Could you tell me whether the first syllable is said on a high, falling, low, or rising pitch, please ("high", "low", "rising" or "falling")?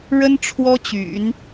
high